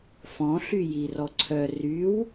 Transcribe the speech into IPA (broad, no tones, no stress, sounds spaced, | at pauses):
f ɔ̃ ɬ y j i r ɔ ǀʰ œ r y w